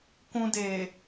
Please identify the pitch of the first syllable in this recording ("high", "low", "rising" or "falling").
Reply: high